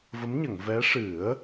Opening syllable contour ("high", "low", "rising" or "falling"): rising